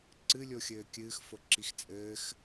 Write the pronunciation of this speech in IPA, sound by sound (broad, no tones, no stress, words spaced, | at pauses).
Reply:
ǀɨlʲo xʲɘːkʲɨːx foǁixt͡sʼɘːx